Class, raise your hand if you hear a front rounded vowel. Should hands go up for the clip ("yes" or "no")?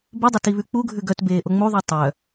yes